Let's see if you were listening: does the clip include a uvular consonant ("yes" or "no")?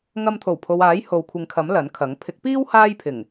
no